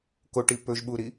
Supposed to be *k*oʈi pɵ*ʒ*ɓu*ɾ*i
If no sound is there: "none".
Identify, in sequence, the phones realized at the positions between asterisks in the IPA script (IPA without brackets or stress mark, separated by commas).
k, ʒ, ɾ